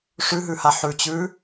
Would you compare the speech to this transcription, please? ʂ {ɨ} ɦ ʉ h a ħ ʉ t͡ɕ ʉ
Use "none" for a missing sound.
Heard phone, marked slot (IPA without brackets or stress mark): ʉ